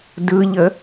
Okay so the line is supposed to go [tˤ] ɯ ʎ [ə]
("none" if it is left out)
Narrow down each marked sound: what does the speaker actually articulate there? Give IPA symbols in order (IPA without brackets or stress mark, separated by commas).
d, ə